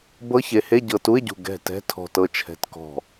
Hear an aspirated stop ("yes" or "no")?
yes